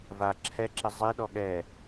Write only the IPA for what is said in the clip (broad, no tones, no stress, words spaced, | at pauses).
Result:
va ǁʰɛǁɪ zˤiɗɔ ɠɛ